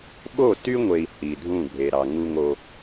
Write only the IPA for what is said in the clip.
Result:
ɓ o˦˨ t y˦ ŋʷ e˨ i̯ h i˨ dʱ ũ˦˨ ɡʱ e˨ ɾ ɑ˨ ŋ u˦ ŋ o˦

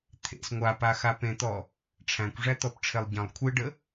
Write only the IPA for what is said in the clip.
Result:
t̪ʰ ḛ s ŋʷ a p a x a p ẽ t̪ ɔ | ʈ͡ʂʰ æ̃ kʷ ʐ æ t̪ ɔ p ʈ͡ʂʰ e lˠ ɟ ə̃ lˠ kʷʰ e ɖ ə

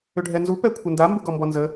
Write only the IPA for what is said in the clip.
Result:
ʏ ɖʱ ɛ n z u p ɛ kʷʰ ɪ n d a m b u ɡ ɔ m b ɔ n z ə

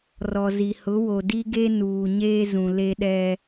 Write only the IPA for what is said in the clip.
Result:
r ɔ˨ z i˨ h ʊ˨˦ w o˨ d i˦ ɡ e˦ n uː˨ ɲ eː˦ z ũ˨ l e˦ ɗ ɛ˦

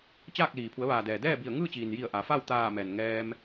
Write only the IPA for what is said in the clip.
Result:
t͡ɕ aː˥˨ k̚ l iː˩ pʰ u˩˧ ə̯ ʋ aː˩ d ɛː˩ d ɛː˥˨ b i˧˩ ə̯ ŋ ɯː˥˨ t͡ɕ iː˩ n j i˧˩ ə̯ ʔ a˩˧ f a˥˨ w t̪ aː˧˩ m ɛː˩ n ŋ ɛː˧ m

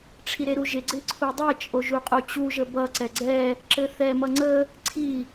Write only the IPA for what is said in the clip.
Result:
ʈ͡ʂʰ i ɾ e ɾ u ʒ ɪ ɡ͡ǀ ɪ ǀʰ u dˤ e t͡ʃʼ o ʒ u qʼ u t͡ɕ u ʒ ə b ʌ ǀ ɛ ɡ͡ǀ ɛ | ǁ ɘ θ ɛ m ʌ ŋ͡ǀ ə | ǀʰ i

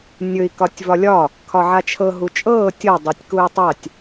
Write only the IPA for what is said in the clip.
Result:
nʲ ɵ i̯ k ɒ tʲ v ɒ lʲ ɒ | kʰ ɒ ʕ a t͡ʃʰ ɤ ɦ u t͡ʃʼ ɤː tʲ ɤ dˤ ɤ tʲ k u i̯ tˤ a tʲ

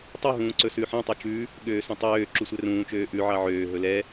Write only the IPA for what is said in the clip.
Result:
tˤ y ɦ ũː ǀ ɵ s ʉ ħ æ̃ tˤ ʉ t͡ʃ ʉ | ɠ øː s ũ tˤ øː ǁ u sʷ ɛ r ũː t͡ʃ øː ʔ ʉ ʕ ɑ ʕ øː ɦ ɵ l ɛ

